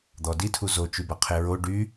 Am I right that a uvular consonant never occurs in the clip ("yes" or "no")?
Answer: no